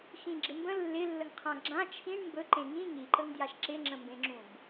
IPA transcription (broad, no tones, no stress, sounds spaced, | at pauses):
x ĩ ɡ͡ǁ ɪ m b ə̃ lː ɪ lː ə ŋ qʰ ã ɡ͡ǁ ã t͡ʃʰ ĩ ɳ m b ɵ ǃ ẽ ŋ ĩ ŋ i ǃ ə ŋ d j a ʃ ǁ ɪ ŋ͡ǁ ə̃ m b ẽ ŋ͡ǁ ũ b